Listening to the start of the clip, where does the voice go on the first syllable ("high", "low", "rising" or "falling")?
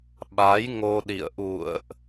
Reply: rising